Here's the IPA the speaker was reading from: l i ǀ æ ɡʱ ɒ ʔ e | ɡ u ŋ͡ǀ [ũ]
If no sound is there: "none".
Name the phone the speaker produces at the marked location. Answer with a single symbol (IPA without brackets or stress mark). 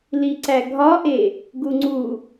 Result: u